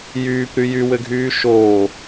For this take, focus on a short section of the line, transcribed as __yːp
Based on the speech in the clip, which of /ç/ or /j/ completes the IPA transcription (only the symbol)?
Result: j